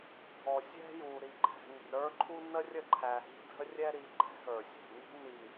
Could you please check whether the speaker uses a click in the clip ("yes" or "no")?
yes